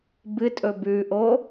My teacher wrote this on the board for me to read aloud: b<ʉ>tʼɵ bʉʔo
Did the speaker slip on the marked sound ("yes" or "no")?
yes